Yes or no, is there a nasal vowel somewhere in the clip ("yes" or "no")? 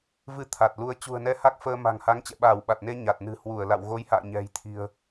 no